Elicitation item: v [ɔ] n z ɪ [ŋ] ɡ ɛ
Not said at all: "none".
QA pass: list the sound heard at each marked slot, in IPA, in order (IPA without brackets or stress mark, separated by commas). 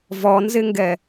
ɔ, ŋ